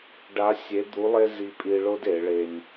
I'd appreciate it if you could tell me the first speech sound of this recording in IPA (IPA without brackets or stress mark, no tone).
ɖ